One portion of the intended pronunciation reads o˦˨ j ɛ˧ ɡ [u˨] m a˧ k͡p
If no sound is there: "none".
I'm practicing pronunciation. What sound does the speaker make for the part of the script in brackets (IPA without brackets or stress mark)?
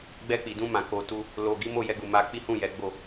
u˨